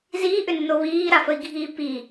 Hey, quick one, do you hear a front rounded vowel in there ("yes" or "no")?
yes